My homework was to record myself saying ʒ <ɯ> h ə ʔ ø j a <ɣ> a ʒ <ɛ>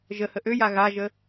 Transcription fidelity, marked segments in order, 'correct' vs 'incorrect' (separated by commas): incorrect, correct, incorrect